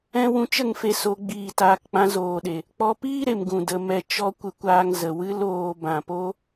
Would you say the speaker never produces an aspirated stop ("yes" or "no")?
yes